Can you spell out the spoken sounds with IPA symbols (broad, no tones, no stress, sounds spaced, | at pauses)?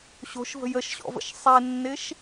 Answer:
ɕ o̤ ʃ v ə̤ j ə ʃ ɕ ɔ̰ v ə̰ ʃ sˤ e nː ɪ ʃ